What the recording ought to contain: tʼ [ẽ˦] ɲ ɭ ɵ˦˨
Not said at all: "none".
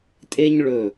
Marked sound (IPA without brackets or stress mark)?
e˦